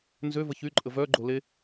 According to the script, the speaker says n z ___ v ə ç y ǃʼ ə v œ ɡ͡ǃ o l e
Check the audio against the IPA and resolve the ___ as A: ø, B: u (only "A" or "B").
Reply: A